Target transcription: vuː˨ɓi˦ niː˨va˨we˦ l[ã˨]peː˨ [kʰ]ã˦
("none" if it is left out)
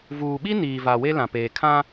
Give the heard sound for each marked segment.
ã˨, kʰ

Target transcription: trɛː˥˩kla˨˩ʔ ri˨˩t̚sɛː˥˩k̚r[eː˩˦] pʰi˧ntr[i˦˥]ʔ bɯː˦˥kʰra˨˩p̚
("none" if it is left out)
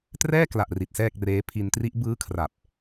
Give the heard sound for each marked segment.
eː˦˥, i˦˥

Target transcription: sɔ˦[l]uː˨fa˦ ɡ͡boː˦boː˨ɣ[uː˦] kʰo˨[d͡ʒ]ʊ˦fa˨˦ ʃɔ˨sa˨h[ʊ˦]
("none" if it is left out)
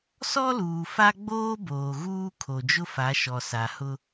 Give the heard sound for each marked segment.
l, uː˦, d͡ʒ, ʊ˦

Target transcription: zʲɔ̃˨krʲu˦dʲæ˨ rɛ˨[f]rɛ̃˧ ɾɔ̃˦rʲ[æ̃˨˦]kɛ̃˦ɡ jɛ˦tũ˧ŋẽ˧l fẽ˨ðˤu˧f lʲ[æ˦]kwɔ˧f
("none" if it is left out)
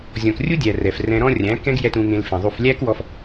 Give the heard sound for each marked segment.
f, æ̃˨˦, æ˦

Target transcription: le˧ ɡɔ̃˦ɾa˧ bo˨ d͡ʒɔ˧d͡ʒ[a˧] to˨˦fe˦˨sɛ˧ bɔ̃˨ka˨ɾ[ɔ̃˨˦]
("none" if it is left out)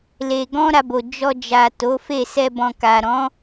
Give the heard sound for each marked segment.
a˨, ɔ̃˨˦

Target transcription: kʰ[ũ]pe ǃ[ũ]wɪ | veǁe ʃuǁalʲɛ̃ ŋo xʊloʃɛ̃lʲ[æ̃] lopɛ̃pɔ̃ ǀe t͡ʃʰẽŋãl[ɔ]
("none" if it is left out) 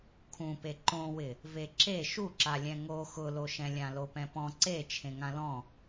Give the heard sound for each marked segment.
ũ, õ, ã, ɔ̃

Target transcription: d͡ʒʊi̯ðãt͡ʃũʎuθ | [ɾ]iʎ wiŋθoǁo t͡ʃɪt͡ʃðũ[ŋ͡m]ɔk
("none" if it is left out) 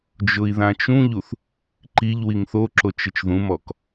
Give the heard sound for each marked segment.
ǃ, m

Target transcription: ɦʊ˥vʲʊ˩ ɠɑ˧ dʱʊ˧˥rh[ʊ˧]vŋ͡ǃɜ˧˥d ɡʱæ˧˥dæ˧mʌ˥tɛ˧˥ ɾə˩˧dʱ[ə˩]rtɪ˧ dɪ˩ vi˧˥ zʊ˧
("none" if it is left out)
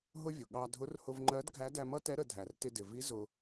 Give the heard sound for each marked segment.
ʊ˧, æ˩

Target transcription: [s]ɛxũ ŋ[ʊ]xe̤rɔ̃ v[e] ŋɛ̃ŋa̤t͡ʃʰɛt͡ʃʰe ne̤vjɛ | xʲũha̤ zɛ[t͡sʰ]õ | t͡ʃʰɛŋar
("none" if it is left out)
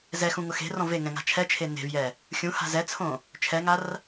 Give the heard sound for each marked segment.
z, ʊ, e, t͡sʰ

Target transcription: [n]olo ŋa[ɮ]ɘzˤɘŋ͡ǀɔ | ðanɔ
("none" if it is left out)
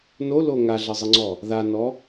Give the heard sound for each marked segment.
n, ɮ

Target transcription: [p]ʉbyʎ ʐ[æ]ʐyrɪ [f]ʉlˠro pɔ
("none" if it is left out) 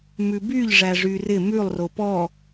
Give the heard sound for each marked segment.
m, æ, m

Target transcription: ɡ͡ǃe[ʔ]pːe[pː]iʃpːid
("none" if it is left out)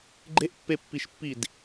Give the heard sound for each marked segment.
ʔ, pː

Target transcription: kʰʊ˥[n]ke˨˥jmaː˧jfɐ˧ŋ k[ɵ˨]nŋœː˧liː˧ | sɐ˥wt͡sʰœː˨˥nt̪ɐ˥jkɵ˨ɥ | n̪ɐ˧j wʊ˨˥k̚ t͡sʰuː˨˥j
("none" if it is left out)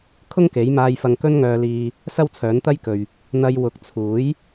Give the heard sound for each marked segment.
ŋ, ɵ˥

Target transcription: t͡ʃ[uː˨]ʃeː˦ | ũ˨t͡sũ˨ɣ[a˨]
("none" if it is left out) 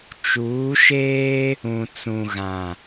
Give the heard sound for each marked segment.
uː˨˦, ã˨

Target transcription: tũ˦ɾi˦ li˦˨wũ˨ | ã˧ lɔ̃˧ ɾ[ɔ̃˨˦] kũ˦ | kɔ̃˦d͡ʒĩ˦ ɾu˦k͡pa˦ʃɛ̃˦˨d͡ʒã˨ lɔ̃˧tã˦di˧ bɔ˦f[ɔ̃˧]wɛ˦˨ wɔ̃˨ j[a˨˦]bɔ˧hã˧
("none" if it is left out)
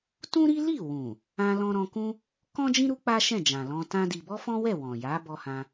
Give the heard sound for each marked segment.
ɔ̃˧, ɔ̃˦, a˨˦

